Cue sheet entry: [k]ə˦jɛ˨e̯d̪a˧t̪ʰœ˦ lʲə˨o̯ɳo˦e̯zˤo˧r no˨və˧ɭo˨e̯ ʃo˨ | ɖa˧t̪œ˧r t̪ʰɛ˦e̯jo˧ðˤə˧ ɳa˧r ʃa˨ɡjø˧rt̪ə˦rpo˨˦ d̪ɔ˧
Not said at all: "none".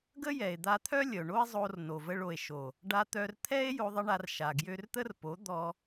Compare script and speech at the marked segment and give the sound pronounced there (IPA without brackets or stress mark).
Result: ɡ